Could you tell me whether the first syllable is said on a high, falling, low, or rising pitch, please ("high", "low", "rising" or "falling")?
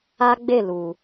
high